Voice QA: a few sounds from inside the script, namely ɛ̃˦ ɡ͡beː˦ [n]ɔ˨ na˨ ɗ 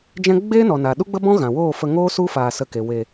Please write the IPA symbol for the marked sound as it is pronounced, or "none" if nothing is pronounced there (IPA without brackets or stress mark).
n